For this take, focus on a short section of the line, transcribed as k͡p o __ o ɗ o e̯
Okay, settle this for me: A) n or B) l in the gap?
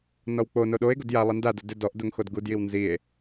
A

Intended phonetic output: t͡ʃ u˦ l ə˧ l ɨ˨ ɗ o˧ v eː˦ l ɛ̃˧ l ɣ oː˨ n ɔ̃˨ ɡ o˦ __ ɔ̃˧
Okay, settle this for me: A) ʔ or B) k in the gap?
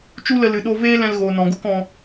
B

